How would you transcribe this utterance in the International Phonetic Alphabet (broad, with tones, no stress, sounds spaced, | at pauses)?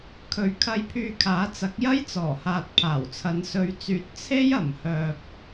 kʰ ɵ˨˧ ɥ kʰ ɐ˧ j pʰ yː˧ kʰ aː˨˥ t͡s ɐ˨˥ k̚ j ɐ˥ j t͡s ɔː˨˩ h aː˨ t̚ pʰ aː˨˩ w t͡sʰ ɐ˨˧ n s ɵ˨˧ ɥ t͡s yː˨ t̚ t͡sʰ e˥ j ɐ˨˩ m h œː˨ p̚